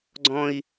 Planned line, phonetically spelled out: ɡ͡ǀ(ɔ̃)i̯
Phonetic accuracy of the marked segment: correct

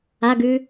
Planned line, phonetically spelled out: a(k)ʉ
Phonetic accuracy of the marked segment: incorrect: ɡ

